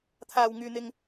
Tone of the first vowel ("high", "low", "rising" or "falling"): low